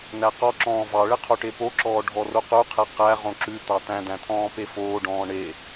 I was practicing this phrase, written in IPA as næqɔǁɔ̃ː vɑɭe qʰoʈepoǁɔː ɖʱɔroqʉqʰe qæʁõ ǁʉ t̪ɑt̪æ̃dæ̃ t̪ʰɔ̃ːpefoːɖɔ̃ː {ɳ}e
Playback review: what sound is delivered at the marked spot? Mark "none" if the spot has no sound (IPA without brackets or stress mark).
ɳ